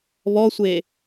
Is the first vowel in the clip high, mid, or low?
mid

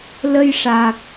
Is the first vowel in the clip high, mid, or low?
mid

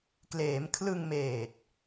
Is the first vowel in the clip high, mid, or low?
mid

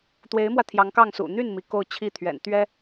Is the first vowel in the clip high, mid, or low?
mid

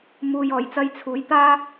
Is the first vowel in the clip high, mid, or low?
high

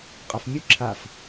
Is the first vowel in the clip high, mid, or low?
low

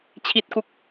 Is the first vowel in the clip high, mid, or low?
high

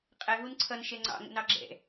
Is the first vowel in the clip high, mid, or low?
mid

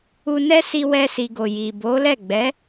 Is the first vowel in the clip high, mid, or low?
high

